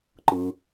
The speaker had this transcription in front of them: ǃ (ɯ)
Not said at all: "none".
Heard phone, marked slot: ɯ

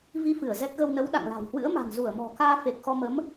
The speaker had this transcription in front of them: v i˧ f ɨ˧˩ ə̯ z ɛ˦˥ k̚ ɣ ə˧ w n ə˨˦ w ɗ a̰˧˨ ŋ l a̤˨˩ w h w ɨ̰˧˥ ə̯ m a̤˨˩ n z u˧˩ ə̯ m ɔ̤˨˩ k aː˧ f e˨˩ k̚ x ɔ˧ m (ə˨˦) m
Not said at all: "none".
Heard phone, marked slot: ə˨˦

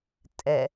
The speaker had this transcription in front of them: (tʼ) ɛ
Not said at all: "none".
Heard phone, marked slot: tʼ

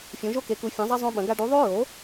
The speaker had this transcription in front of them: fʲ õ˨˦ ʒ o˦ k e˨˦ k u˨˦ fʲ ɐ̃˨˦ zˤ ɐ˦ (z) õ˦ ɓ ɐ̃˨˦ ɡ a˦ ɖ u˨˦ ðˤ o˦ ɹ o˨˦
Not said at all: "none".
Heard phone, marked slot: zˤ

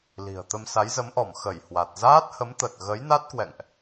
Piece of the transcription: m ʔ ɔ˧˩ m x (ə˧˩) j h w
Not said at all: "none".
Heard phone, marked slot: ə˧˩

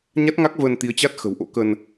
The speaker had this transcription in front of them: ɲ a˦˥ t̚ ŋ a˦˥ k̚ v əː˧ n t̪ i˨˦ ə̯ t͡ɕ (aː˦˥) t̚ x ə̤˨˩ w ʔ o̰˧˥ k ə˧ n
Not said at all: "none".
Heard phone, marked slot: a˦˥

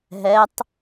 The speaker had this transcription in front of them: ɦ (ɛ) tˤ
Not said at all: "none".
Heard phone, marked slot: ɛ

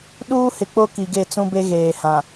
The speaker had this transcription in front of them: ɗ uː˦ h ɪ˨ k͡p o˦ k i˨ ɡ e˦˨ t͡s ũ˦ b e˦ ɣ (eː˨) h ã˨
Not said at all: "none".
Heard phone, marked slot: eː˨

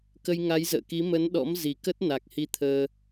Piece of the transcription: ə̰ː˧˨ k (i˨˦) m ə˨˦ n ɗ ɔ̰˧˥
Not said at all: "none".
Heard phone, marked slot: i˨˦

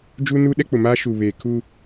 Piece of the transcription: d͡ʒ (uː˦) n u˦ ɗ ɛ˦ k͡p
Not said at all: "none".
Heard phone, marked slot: u˦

